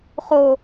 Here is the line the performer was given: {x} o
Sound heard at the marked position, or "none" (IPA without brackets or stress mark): χ